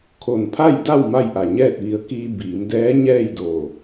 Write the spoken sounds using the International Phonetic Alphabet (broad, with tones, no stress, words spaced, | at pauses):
kʰo˧˩n pʰa˥˨jda˥˨w ma˥˨jʔa˧˩ɲɛː˥˨t̚ʋi˧ə̯ kiː˧ biː˩˧mdɛː˧˥ɲɛː˥˨jdo˧˩